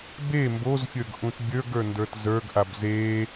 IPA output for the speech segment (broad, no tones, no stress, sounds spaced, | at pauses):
b e m b o z fʲ ə˞ ɡ ʔ ũ t bʲ ə˞ ɡ ə˞ n d ə˞ t z ə˞ ɡ ʔ a b z e